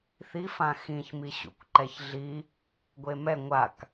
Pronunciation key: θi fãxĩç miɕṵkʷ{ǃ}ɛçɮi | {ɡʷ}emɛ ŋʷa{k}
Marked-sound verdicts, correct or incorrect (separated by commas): correct, correct, correct